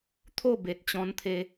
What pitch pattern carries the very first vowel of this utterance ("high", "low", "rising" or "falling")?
falling